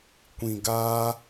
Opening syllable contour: low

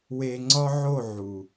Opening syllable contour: low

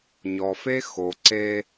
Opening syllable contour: low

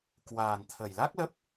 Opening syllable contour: low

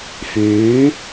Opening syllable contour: rising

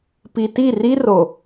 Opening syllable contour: low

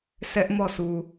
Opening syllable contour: high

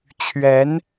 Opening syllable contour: rising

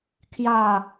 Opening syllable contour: falling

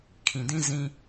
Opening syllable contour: low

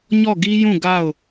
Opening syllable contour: falling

